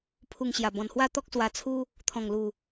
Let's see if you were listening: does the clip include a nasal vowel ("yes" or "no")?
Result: yes